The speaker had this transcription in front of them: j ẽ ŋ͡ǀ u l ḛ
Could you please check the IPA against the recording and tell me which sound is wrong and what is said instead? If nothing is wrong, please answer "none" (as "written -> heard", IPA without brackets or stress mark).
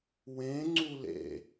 j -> w